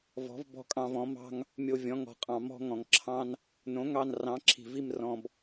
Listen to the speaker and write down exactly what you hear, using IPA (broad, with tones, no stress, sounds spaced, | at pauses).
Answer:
v ɔ̤˨˥ v b ɔ̤˦ kʼ ɑ̃˦˨ v ɔ̃˨˥ m ɑ̤˦ ŋ | mʲ o˦˨ vʲ ɔ̃˨˥ ŋ ɔ̤˨ qʼ ɑ̃˨ m ɔ̤˦ ŋ ɔ̃˨ ŋ ǁʰ ɑ̃˦ n | n õ˨˥ ŋ ɑ˦˨ n r ɑ̃˨˥ ǁʰ i̤˨ v i˦˨ m r ɔ̃˨ b